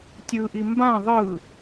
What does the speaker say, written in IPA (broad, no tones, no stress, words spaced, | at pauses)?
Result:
tʲɯʔi mbã ðˤɯ